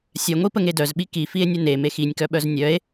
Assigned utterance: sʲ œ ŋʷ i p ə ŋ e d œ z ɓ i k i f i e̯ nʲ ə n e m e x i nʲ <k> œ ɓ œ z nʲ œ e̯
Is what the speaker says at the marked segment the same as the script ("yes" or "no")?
yes